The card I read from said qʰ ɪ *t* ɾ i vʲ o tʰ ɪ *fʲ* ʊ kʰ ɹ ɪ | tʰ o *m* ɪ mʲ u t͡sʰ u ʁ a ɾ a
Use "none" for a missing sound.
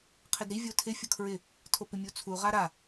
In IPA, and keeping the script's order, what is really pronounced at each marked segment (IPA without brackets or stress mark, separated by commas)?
d, fʲ, p